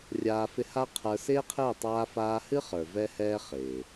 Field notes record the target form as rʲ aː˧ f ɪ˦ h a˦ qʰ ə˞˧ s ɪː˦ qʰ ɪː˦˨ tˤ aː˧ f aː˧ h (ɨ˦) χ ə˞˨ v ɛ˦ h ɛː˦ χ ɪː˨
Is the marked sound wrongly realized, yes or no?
no